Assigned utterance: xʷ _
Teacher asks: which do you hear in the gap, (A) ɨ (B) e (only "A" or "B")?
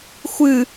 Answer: A